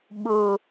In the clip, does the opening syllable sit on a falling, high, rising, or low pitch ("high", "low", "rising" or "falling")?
low